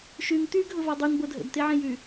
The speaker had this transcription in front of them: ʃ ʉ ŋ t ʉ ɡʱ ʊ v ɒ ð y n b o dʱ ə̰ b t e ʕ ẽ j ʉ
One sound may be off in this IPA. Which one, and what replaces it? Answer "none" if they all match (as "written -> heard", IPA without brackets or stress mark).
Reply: ð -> dˤ